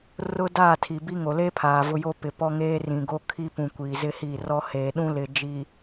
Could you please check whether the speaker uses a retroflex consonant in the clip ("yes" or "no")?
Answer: no